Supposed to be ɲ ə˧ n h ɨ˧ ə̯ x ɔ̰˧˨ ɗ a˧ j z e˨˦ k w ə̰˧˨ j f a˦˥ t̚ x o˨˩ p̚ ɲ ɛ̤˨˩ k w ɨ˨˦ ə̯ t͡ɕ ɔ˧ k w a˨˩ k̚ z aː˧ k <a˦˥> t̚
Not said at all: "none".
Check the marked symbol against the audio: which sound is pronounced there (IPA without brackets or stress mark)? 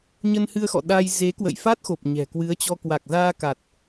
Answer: a˨˩